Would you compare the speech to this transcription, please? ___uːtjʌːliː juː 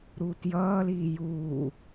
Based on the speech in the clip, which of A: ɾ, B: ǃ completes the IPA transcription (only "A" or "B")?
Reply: A